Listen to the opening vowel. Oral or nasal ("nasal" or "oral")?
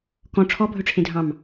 nasal